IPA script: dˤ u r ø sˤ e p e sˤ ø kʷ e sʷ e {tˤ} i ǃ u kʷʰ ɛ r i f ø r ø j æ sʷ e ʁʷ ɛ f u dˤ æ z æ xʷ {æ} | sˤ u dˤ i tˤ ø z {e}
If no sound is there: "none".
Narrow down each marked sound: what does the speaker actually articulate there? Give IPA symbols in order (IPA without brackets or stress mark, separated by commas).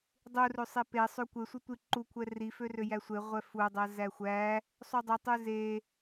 tʷ, æ, e